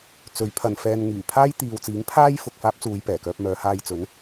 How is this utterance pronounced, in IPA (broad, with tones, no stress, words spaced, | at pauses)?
t͡sɵ˨˥ɥpʰɐ˨nfɛː˧n ŋyː˨˩pʰaː˥j t̪iː˨wt͡siː˨˥ŋ pʰaː˥j fʊ˨k̚faː˥p̚t͡suː˨˧j pɛː˨˩kœː˧p̚ mœː˨˧haː˧jt͡sɵ˨˥n